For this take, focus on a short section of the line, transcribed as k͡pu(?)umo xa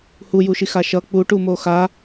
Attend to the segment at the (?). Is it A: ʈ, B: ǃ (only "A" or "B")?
A